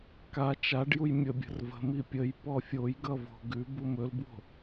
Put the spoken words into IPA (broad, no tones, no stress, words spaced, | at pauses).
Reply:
ka t͡ʃaɖjuj mʲəbʲə̤r və̤ mipʲəj pɔfʲojɡʌvo̤ ɡʉ bumɵlbwo̤